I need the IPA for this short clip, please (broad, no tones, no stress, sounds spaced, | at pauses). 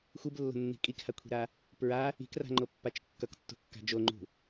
xʷ ɯ b lː o̤ nː i̤ kʼ i k h a kʷʰ i̤ ɾ a | p ɹ a | i̤ k r a̤ ŋ͡ǃ o pː a t͡ʃ kː ʌ k tː ṳ kː a̤ d͡ʒ o ŋ͡ǃ ṳ